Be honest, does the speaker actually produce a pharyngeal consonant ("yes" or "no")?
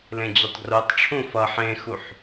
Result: yes